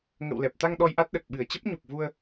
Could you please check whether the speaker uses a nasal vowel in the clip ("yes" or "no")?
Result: no